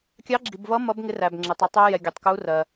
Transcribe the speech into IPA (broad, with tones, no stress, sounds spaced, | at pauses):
kʲ ɑ˨˥ ɡ͡ǁ i˩ b v ʌ˨˥ m ʌ˨˥ b ŋ ɪ˨˥ r æ˩ b ŋ͡ǁ ɪ˩ tˤ u˩ tˤ u˨˥ j ɛ˩ ɡʲ ʌ˩ tˤ k u˨˥ r ɜ˩